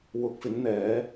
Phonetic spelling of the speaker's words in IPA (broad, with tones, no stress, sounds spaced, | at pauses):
w ʊ˨˥ k̚ f ɪ˨˥ ŋ n̪ ɛː˨˥